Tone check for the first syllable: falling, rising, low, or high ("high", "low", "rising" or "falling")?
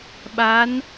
rising